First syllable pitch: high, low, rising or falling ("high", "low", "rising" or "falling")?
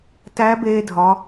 rising